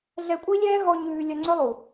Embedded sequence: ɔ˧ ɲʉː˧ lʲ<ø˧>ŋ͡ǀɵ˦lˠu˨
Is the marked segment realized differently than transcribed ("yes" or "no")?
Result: yes